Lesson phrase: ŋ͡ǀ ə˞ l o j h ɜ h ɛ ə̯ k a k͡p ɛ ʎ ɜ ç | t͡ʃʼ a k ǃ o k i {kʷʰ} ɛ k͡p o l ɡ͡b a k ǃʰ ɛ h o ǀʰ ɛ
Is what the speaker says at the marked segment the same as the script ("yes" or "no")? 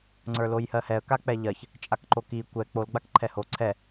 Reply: no